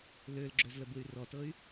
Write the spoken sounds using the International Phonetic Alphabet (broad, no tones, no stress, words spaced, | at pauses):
lølɡ͡ǁøzlə bɯy̯rɔtɤy̯